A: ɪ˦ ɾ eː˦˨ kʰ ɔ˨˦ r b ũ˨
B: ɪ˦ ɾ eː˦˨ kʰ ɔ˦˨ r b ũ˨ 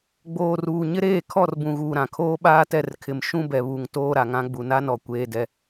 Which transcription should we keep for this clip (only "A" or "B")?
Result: B